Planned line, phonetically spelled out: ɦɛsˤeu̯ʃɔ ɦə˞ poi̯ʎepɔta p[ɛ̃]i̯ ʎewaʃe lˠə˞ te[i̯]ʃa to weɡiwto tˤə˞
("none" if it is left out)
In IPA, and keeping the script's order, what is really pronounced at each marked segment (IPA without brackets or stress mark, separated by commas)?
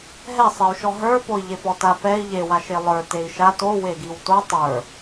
ɛ, i̯